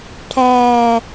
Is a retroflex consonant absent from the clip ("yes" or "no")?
no